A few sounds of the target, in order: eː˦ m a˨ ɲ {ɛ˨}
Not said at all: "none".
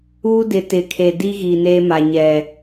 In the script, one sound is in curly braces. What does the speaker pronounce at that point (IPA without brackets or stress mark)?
ɛ˨